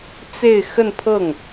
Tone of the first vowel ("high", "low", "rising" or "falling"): falling